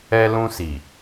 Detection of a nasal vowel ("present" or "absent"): present